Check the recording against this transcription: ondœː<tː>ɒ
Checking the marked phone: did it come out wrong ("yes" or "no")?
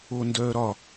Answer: yes